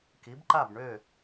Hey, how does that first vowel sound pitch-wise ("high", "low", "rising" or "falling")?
rising